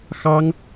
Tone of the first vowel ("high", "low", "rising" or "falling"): high